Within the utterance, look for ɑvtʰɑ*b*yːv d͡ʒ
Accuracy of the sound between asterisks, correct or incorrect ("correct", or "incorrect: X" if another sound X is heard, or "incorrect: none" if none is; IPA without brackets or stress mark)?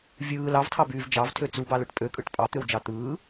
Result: correct